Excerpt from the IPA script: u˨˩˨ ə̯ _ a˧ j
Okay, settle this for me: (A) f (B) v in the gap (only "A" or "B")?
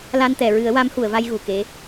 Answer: B